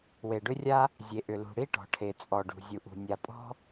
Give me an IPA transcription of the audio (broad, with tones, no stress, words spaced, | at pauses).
we˩ɖʏ˥rʲa˥ | zʲe˩ʔʏ˩lṳ˩ ɽi˥ʈɔ̤˩ʈʰe˩t͡sʼɔ˩ ɖṳ˩zʲu˩ʔṳ˩ nʲa˩pʼɔ̤˥